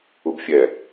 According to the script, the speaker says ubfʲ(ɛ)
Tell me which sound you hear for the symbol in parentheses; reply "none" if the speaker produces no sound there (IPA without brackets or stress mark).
ɛ